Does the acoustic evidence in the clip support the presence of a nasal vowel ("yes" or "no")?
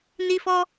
no